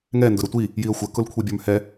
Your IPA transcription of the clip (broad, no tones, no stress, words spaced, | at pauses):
ŋɛ ndʊɾətʷi | jiə̯xʷə kʊlkʷʰibʲə˞mhɛ